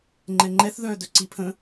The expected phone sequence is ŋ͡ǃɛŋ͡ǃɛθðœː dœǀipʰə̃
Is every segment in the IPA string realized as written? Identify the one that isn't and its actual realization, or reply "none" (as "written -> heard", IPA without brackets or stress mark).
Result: none